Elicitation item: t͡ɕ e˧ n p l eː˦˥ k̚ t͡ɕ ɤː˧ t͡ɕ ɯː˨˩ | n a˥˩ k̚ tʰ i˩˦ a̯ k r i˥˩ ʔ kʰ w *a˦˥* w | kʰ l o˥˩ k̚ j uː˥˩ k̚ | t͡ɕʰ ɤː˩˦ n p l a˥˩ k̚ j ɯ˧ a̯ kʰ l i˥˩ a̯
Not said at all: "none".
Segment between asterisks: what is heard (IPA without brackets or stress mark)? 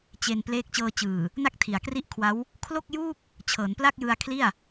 a˦˥